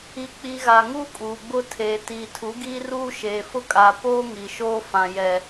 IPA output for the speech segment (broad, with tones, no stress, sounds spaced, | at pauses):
i˨ k͡p i˨ ɣ a˨ ŋ u˦ kʼ uː˨ ɡ͡b ʊ˦ tʰ eː˨ t iː˨ tʰ u˨˦ ɡ iː˦ r uː˦ ʃ eː˨ f ʊ˦ kʼ a˨ p oː˦ ŋ i˨ ʃ oː˦ f ã˨ j ɛ˨